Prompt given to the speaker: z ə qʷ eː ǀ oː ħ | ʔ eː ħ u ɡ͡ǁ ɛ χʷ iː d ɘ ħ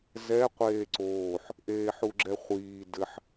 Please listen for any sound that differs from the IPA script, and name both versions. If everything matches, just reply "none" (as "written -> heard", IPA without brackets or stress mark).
ə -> ɛ